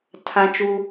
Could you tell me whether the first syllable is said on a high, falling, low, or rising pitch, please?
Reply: high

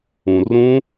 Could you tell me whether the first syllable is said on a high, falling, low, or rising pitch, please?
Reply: low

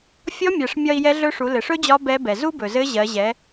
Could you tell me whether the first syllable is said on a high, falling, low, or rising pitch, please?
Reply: rising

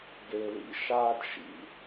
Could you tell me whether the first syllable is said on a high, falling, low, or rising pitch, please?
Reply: low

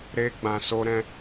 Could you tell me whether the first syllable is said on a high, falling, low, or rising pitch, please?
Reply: high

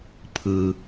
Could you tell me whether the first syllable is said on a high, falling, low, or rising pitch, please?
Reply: low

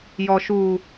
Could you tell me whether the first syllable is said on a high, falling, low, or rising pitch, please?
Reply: low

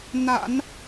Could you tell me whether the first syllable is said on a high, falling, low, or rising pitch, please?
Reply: low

